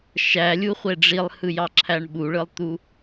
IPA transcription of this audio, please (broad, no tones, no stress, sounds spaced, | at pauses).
ʃ æ lʲ u χʷ e ɖ͡ʐ i lˠ h ɯ j ɑ ǁʰ æ ɳ ɓ u ɭ ɯ lˠ t̪ u